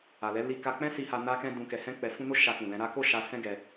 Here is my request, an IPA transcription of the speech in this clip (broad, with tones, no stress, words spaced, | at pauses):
a˨lɛ˨˦ li˧ka˧k͡pɛ̃˦ si˧ha˧ na˦kɛ̃˦ dũ˧kɛ˧ hɛ̃˦k͡pɛ˧fũ˦ no˦ ʃa˧kũ˨ lɛ̃˧ ɾa˦ ko˦˨ʃa˧ sɛ̃˦ɡɛ˧